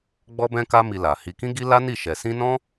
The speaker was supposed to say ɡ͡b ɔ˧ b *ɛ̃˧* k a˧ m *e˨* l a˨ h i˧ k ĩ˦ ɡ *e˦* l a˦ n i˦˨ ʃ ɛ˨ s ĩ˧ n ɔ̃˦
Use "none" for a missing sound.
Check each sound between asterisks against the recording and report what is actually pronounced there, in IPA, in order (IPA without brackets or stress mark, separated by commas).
ɛ̃˧, i˨, i˦